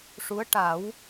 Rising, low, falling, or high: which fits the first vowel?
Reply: rising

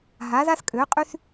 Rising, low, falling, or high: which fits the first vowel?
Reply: rising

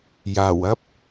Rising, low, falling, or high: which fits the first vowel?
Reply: low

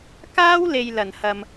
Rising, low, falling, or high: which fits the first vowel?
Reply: high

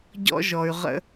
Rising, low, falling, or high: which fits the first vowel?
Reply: high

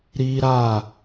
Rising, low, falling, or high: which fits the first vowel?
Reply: high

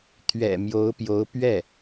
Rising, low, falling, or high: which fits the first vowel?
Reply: low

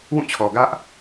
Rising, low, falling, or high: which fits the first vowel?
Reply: falling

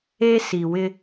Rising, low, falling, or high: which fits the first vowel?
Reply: high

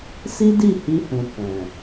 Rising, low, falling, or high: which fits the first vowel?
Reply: high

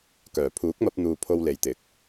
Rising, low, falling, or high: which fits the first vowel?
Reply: low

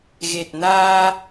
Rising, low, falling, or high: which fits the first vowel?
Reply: low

